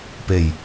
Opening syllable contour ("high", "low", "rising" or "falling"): low